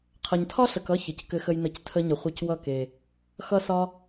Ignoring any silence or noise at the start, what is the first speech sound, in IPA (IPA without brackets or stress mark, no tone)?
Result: qʰ